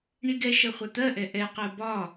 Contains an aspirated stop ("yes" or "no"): no